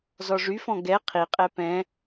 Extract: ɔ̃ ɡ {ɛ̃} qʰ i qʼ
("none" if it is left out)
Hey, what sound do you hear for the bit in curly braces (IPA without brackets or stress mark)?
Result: ɛ